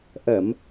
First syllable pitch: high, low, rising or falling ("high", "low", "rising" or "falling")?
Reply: low